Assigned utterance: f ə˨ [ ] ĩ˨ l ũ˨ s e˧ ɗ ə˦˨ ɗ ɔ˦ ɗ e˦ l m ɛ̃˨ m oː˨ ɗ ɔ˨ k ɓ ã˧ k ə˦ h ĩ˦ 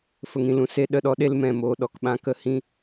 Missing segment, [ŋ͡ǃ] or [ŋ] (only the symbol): ŋ